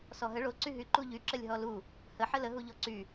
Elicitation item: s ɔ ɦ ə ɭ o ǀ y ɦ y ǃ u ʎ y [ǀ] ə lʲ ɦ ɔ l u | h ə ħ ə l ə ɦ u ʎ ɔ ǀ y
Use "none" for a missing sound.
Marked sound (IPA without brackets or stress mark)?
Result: ǁ